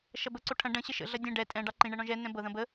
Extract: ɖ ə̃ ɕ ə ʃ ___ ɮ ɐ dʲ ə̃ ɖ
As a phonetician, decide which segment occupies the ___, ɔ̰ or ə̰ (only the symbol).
ə̰